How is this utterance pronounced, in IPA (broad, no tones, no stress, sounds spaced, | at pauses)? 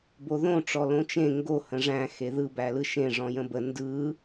b o ð õ ʈ͡ʂ ɔ l õ t͡ʃ ẽ ŋ ɡ o h ə̃ ʐ æ̃ x e ð ɯ b æ l ɯ ʃ ẽ ʐ ɔ̃ j ə̃ b ə n d ɯ